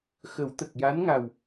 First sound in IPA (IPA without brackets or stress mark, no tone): x